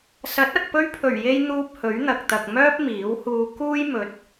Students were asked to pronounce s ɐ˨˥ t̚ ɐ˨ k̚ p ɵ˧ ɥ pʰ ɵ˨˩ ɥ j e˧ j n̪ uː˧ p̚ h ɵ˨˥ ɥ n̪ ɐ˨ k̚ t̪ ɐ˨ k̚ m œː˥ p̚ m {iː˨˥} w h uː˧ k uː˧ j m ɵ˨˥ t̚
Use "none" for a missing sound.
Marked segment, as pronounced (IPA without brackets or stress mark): iː˨˥